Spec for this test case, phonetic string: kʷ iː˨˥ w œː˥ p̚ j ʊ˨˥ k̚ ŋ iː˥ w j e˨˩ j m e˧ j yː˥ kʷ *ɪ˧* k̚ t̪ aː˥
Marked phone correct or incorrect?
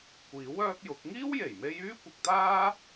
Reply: correct